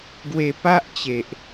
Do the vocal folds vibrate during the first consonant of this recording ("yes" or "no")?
yes